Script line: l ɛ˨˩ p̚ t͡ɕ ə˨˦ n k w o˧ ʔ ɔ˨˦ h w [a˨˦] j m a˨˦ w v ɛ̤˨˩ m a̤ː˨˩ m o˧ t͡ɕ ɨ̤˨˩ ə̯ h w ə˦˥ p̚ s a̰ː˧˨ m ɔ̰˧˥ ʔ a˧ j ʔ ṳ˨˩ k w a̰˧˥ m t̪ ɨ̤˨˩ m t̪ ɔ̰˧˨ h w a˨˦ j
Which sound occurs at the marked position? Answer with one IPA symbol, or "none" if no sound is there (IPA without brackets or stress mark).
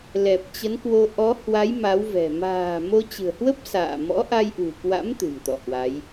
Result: a˨˦